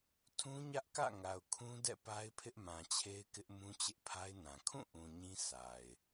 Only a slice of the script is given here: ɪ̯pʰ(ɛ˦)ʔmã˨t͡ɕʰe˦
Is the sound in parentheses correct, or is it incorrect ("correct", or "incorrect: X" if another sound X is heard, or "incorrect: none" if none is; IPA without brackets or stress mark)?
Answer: incorrect: ɪ˦